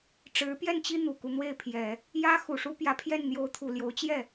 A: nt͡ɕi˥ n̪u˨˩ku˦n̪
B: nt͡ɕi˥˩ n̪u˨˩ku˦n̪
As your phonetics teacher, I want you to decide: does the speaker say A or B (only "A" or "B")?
A